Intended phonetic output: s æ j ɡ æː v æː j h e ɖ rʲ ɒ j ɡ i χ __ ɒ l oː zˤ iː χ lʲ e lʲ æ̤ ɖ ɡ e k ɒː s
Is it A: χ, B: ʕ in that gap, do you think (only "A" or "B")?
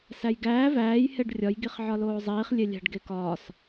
B